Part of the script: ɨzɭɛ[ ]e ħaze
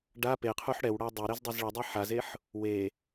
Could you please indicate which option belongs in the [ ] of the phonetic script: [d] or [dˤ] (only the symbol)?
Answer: dˤ